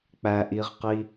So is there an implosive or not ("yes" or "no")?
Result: no